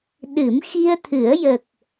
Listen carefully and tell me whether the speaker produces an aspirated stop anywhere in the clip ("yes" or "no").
yes